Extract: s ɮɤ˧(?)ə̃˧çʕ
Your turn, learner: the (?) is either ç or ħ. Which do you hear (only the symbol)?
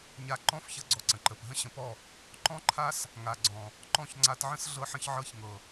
ħ